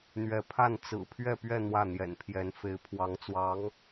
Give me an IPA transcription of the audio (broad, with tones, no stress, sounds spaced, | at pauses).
n̪ ɥ ɛ˧˥ pʰ a˥˩ n t͡s ɹ̩˨˩ pʰ ɥ ɛ˥˧ p ɥ ɛ˥˧ n̪ w ä˥˩ n̪ j ɛ̰˨˩ n pʰ j ɛ˧˥ n f e˧˥ ɪ̯ pʰ w ɑ˧˥ ŋ t͡s w ɑ˧˥ ŋ